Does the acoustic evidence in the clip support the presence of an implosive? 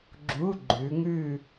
no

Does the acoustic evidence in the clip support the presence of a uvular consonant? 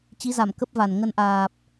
no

